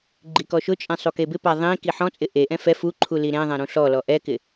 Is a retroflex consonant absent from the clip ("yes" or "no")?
yes